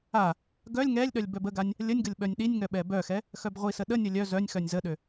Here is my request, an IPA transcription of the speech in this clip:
a | ɡ œ lʲ ŋ ɛ lʲ ɗ œ lʲ b œ b ə ɡ a nʲ | lʲ ə nʲ ɡ ə lʲ ɓ œ nʲ ɗ i nʲ ŋ œ ɓ ɛ b œ x ɛ | x œ b ʁʷ i s ə ɗ ə nʲ ə lʲ œ z œ nʲ x œ nʲ z ə ɗ ø

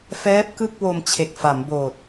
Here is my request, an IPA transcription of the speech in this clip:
f ɛː˦˥ p̚ k ɯ˥˩ k̚ w o˧ m t͡ɕʰ e˨˩ k̚ f a˩˦ m b oː˨˩ t̚

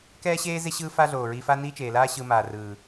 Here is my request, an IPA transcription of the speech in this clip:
k ɛː˦ ɕ eː˦ z e˦ ɕ ɯː˦ f a˦ ɮ oː˨ ɹ i˧ f a˦ n iː˦ t͡ʃ eː˨ l aː˦ ɕ ɯ˧ m aː˨ r ɯː˨

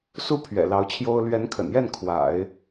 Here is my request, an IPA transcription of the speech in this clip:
s u˥ pʰ ɥ ɛ̰˨˩ l ɑ˧˥ ʊ̯ t͡ɕʰ j o˥ ʊ̯ l ɥ ɛ˧˥ n kʰ ə̰˨˩ n j ɛ˥˩ n kʰ w a̰˨˩˦ ɪ̯

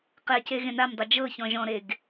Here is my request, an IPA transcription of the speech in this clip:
q ɛ c e ɣ ẽ n a m dˤ ɤ d͡ʒ ɤ ç ɔ̃ ʒ ɔ̃ ɾ e ɡ

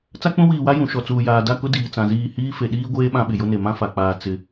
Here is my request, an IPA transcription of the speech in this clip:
t͡s a˦ k͡p ũ˦ w iː˨ w a˦ j ũ˨ ʃ ɔ˨ t͡s uː˨ j aː˨ d a˦˨ k ʊ˦ d iː˨ t͡s ã˨ z iː˦˨ h iː˦ f e˨ ɗ iː˦ ɡʷ eː˦ ɓ ã˦ ɓ ɪ˨ j ʊ˦ n e˨ m ã˦ f a˨ k͡p aː˨ t͡s ɪ˨˦

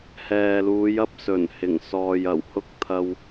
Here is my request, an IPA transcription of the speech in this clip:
h ɛː˨ l uː˨˧ j ɐ˧ p̚ s ɵ˨˩ n h ɪ˨˩ ŋ s ɔː˨ j ɐ˨˩ w h ʊ˥ k̚ t̪ʰ ɐ˧ w

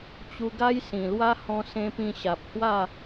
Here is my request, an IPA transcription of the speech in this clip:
t͡ɕ u˧ ɡ a˦ j s ĩ˨˩ l w a˦ h ɔ̃˧ s ẽ˧ p ĩ˧ ɕ a˨ p̚ h w a˥˧

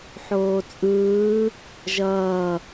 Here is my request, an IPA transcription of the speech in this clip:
ħ oː t͡sʼ ɯː | ʒ ʌː

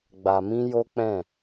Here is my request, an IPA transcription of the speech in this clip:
ɡ͡b a˨ m ĩ˧ j o˦ k͡p ɛ̃˦˨

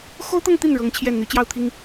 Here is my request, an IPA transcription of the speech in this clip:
x o˥ ʊ̯ t̪ ɤ˥˧ ŋ t̪ i˥˩ n ɻ ɤ˧˥ ŋ t͡ɕʰ j ɛ˥˩ n n̪ y˧˥ t͡ɕ j ɑ˥˩ ʊ̯ t̪ʰ i˥ ŋ

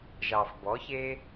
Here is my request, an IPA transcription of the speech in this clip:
ʒ ɑ˨ f b ɔ˨˦ ç e˦

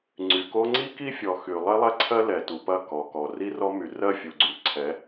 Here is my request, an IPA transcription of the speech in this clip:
ŋ͡ǀ y˨ k o˦ ŋ͡ǀ i˦ k i˦ fʲ ɔ˨ x y˨ lˠ e˦ lˠ ɛ˦ ǀʰ ɜ˦ l ɛ˨ t u˨ p ɐ˦˨ k ɔ˨ k ɔ˨ r i˦ r ɔ˦ m y˨ r ɜ˦˨ fʲ u˨ ɡ͡ǀ y˨ ǀʰ ɛ˨˦

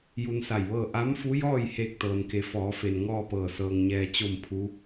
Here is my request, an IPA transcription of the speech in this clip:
j u˧ n s a˧˩ j ʋ ɤː˥˨ ʔ a˧˥ m f u˧˥ j ɔː˥˨ j h eː˥˨ k̚ t̪ ɤː˩ n k e˩˧ f ɔː˩˧ f e˩ n ŋ ɔː˥˨ p ɤː˧˩ s ɤː˩ ŋ ɲ ɛː˩ t͡ɕ o˥˨ m pʰ u˧˥

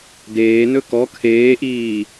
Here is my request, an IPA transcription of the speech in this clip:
d eː n ɵ k ɔ kʰ eː ʔ iː

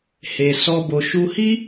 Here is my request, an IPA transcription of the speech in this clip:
h e˨ s ɔ˧ b o˨ ʃ u˧ h i˦

